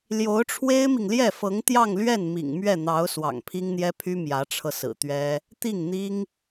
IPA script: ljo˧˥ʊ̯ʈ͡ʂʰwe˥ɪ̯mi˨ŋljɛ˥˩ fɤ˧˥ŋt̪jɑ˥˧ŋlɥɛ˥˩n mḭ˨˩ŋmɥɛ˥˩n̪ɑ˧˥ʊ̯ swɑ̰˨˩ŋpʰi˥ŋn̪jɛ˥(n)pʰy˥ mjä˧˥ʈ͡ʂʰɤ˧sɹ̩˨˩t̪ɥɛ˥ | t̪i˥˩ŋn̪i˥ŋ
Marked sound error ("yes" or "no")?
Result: yes